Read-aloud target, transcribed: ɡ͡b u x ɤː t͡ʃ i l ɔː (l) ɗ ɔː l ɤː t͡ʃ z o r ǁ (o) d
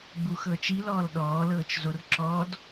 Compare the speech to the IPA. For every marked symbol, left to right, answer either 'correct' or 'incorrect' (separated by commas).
correct, incorrect